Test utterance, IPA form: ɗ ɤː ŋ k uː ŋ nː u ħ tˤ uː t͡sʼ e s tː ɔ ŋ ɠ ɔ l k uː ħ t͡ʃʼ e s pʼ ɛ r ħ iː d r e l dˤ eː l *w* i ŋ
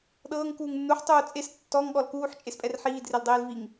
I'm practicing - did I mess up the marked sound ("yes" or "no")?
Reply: yes